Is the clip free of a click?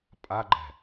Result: no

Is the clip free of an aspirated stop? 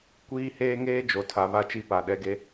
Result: no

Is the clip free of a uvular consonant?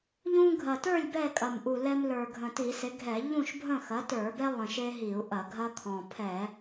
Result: yes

